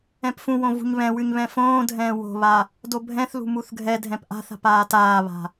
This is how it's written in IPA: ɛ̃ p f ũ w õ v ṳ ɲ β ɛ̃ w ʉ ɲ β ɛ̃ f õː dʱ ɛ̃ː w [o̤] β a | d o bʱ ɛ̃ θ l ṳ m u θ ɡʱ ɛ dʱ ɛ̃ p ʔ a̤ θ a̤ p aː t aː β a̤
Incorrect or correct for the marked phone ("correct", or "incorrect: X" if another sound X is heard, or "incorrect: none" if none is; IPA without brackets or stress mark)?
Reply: correct